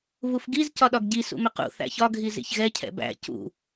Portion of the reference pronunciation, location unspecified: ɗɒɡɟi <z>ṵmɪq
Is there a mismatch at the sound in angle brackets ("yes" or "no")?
yes